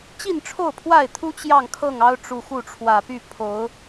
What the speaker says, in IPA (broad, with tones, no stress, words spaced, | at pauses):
t͡ɕi˥˨nʈ͡ʂʰo˥˨ʊ̯pʰwa˥˨ɪ̯t̪ʰu˦ t͡ɕjɑ˥˨ŋkʰɤ˥˨ŋɑ˦ʊ̯ʈ͡ʂu˨˩ xu˥˨ʈ͡ʂʰwä˨˩ py˥˨pʰo˨˦ʊ̯